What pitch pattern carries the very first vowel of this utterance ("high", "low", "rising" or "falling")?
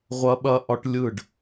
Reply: high